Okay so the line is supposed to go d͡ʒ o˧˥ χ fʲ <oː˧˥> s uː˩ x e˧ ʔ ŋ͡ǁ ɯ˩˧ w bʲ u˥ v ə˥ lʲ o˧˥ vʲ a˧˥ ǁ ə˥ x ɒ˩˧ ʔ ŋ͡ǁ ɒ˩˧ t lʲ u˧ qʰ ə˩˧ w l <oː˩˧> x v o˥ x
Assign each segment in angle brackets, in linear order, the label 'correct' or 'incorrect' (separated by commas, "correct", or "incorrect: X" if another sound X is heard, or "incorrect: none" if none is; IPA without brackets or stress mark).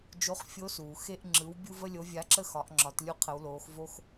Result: incorrect: o˧˥, correct